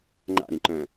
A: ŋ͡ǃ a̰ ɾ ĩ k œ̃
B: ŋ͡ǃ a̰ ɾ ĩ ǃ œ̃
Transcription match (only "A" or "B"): B